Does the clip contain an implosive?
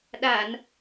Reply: yes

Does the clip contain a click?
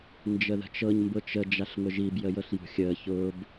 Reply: no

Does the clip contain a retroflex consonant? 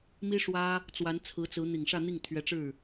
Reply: yes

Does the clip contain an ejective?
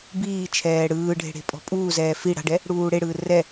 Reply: yes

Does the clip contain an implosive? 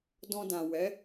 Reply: no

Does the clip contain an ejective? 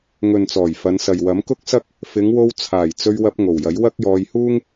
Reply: no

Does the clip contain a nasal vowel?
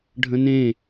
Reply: yes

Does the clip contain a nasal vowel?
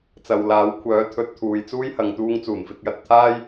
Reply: no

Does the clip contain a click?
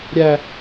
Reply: no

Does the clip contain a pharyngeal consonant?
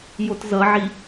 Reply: yes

